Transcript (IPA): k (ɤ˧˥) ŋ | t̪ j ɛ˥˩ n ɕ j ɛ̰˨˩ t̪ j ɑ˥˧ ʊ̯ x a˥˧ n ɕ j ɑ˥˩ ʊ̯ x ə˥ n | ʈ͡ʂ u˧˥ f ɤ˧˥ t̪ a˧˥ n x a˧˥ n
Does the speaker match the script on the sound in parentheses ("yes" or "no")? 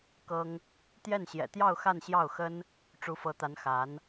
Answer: no